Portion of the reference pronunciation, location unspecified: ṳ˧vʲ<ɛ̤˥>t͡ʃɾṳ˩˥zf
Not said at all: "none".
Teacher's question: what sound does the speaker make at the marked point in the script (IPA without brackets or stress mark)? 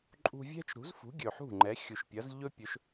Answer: ɛ̤˥